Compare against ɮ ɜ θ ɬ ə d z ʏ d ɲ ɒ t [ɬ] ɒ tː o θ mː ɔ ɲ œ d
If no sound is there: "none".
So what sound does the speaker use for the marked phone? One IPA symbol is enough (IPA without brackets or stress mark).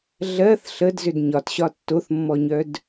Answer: ɕ